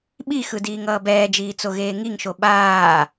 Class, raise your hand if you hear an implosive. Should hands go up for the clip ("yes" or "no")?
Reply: yes